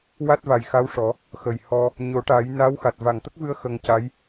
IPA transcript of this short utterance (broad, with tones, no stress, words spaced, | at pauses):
wa˦˥t̚va˨˩jxa˧˥wʂɔ˨˩˦ | xə˨˩j hɔ˧ | ɲo˨˩˦ʈa˨˩˦j na˧˥wxa˨˩t̚ va˨˩ŋt̪ə˦˥k̚vɨ˧ə̯ xə˧ŋca˧˥j